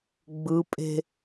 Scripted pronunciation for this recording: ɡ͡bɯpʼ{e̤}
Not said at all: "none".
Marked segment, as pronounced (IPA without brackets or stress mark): e̤